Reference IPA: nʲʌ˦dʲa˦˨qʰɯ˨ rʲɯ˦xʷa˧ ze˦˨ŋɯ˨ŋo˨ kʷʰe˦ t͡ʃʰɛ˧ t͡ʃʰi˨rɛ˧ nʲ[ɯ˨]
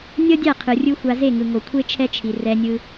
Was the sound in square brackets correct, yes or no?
no